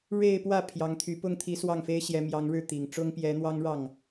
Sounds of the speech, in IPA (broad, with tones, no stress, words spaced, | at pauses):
ɻe˥˧ɪ̯pwä˥˩ pʰjɑ˧˥ŋt̪ʰy˧˥pʊ˥ŋ t̪ʰi˧˥swɑ˥˩ŋfe˥ɪ̯ɕjɛ˧˥ mjɑ˧˥ŋɻɻ̩˥˩ t̪i˨˩ŋʈ͡ʂʊ˥ŋ pjɛ˧˥n̪wɑ˥ŋɻɑ˥˩ŋ